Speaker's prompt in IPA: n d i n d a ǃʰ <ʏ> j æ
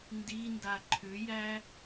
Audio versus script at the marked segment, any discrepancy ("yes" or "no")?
no